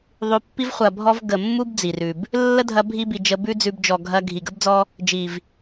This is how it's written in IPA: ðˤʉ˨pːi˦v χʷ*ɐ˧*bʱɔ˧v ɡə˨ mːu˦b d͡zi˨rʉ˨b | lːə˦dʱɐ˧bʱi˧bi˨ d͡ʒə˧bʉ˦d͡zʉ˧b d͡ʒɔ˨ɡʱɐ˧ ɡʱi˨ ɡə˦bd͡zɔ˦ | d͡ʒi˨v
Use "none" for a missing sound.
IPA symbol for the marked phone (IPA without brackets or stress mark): ɐ˨